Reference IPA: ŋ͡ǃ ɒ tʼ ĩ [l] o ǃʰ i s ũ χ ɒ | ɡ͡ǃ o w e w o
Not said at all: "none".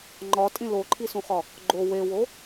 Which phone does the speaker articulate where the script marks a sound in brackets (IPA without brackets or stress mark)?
l